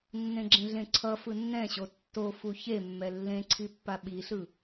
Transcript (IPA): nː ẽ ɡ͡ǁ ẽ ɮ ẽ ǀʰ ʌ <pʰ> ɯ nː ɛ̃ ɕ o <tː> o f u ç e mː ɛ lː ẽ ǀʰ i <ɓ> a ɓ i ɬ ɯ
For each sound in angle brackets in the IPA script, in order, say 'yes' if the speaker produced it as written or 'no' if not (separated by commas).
no, yes, no